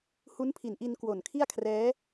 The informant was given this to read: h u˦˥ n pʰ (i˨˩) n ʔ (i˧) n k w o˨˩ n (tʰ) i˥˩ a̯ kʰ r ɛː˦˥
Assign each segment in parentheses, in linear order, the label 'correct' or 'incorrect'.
correct, correct, incorrect

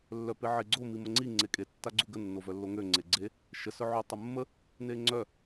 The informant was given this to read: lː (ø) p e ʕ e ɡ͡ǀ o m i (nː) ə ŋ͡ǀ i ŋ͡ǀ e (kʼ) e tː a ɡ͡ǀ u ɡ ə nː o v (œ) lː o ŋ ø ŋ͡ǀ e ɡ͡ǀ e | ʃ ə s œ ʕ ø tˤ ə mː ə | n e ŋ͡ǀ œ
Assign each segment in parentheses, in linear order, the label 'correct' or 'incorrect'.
incorrect, incorrect, correct, correct

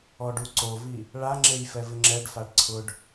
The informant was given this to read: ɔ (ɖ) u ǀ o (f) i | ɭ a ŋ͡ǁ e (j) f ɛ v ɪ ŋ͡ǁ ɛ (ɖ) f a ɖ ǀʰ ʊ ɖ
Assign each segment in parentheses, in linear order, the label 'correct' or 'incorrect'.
correct, incorrect, correct, correct

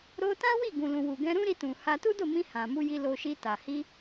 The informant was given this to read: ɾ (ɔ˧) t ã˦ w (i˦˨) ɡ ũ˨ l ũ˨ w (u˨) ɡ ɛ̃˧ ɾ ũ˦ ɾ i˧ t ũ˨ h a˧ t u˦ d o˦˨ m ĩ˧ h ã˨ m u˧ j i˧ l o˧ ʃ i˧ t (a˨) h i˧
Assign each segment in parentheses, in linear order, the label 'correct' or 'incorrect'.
incorrect, correct, correct, correct

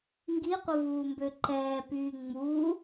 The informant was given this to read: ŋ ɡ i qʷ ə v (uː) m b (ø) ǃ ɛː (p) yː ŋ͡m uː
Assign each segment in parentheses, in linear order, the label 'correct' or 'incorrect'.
correct, correct, correct

